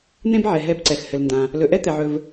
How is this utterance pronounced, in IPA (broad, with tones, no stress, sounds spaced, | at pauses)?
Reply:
n̪ ẽ˦ b ʕ ɛ˩ ɦ ɛ˨ b ǀ ɛ˩ x h ɘ˩ l n d ã˩ | l ɵ˨ ʔ ɛ˥ t̪ ɛ˩ ʕ ɵ˨ v